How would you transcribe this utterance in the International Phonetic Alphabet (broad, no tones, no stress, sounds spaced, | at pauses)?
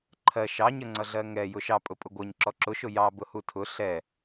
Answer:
ǃʰ ɜ ʃ ɑ ɲ ə ŋ͡ǀ ʌ ɮ ɜ ŋ ɛ j ʊ ʃ ɑ pʼ ʊ pʼ ʊ ɡʷ ʌ ɲ ǁ ɔ ǁ ʊ ʃ ʊ j ɑ b ʊ h u tʰ ʊ ɬ ɛ